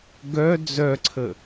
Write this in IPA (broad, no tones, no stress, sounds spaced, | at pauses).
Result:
ɡ œ d͡z œ ǀʰ ə